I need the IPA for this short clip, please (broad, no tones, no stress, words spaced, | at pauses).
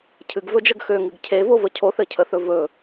cʰɨɡvɵd͡ʒəɡ xøŋɨɡ cʰevovə cʰoθɘcʰəθɵ vɵ